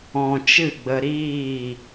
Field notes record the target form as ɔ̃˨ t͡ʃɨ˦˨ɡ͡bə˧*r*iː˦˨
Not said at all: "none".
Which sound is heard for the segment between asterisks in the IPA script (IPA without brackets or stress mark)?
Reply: ɾ